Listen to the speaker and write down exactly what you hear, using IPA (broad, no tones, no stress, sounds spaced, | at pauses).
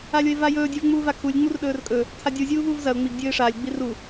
a lʲ o ɪ̯ v a j ɵː dʲ ʉ v ŋ͡m uː v a kʰ u lʲ ŋ͡m u r ɗ ɵː r kʼ ɵ | tʰ a dʲ u zʲ uː v uː v z ɐ ʊ̯ ŋ͡m i ɡ dʲ ɵː ɪ̯ ʂ aː lʲ ɡ͡b i r u